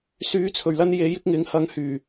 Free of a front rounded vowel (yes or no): no